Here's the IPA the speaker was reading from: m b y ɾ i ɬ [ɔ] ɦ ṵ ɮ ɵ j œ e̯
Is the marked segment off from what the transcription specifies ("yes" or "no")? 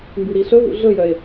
yes